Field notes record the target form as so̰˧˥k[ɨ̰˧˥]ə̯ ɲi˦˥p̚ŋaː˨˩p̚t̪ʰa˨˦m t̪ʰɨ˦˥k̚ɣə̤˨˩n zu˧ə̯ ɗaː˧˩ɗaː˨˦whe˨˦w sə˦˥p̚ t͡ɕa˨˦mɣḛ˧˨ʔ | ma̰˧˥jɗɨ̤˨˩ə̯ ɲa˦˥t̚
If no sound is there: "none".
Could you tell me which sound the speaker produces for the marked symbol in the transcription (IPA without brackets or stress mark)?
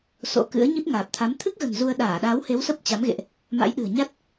ɨ̰˧˥